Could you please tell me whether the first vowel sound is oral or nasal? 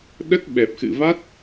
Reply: oral